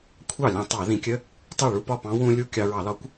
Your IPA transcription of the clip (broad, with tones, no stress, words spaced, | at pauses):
kʷʰɑ˥˩lʲɑ̃˧tˤɑ˧˩˧ ðĩ˧˩˧kʲə˧˥˧ | tˤɜ˥˩ɭu˧˥˧ pɒ˥˩pɑ̃˧˥ wũ˧ lʲu˧˥˧ kʲɑ˧ɹɑ˧˩˧lɒ˧˥kʷ